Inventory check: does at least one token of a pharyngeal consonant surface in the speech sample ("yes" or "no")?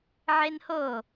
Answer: yes